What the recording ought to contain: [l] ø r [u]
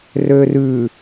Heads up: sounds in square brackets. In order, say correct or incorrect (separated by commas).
incorrect, incorrect